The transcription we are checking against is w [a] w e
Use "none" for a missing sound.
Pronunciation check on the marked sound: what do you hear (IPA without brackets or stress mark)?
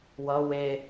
ʌ